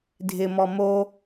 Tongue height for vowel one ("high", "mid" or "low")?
high